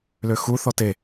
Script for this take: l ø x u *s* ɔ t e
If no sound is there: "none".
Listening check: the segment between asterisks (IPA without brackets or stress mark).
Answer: θ